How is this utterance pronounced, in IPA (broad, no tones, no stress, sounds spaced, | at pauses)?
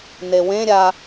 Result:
n e w ẽ ɾʲ a